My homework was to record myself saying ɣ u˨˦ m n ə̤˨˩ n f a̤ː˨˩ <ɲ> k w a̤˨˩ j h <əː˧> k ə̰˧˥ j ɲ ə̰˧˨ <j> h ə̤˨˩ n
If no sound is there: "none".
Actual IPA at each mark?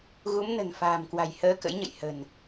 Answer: m, əː˧, j

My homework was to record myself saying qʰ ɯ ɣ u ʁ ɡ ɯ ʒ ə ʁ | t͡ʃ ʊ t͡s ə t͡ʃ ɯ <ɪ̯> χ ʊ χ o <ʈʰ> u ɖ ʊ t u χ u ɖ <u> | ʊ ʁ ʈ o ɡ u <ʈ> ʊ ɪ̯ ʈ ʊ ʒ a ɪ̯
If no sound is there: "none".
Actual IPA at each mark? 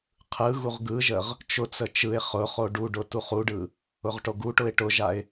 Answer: ɪ̯, ɖ, ɯ, ʈ

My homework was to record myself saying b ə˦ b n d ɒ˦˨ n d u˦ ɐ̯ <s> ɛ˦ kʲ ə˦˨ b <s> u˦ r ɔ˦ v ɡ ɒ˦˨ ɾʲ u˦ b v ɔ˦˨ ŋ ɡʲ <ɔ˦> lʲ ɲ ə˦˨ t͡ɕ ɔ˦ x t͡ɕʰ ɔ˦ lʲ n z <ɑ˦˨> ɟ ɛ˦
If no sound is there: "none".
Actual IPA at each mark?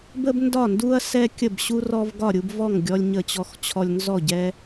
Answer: s, ɕ, ɔ˦, ɔ˦˨

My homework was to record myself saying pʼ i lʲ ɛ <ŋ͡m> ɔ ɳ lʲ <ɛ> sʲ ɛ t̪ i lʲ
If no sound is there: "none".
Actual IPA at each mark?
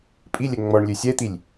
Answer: ŋ͡m, ø

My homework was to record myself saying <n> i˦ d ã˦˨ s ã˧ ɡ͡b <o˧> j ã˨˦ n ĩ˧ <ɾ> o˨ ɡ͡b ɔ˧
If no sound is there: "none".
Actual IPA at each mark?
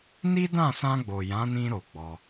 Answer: n, o˨, ɾ

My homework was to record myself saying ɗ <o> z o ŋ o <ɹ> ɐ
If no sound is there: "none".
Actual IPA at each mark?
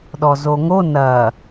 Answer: ɔ, n

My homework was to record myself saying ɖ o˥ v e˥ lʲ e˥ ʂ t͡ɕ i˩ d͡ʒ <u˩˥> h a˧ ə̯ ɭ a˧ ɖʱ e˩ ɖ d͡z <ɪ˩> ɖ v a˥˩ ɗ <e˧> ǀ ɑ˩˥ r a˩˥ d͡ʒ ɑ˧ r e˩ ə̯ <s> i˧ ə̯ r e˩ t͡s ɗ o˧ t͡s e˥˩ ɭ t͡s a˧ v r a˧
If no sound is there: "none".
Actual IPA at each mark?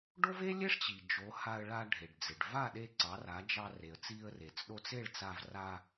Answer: o˩˥, ɪ˩, e˧, t͡s

